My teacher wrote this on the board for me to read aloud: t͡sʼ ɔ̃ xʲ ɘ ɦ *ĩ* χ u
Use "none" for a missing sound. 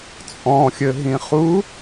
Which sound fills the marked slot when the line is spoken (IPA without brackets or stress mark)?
ĩ